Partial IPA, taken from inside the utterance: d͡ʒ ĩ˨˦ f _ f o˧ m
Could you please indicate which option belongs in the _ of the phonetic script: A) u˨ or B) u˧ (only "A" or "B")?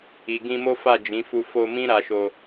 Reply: B